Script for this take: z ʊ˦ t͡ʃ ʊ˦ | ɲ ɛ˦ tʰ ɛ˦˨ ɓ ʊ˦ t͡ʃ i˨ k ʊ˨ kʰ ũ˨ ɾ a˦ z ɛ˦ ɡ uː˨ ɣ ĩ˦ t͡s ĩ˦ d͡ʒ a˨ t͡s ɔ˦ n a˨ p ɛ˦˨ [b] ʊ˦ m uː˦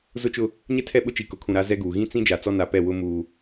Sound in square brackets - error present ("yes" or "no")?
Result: yes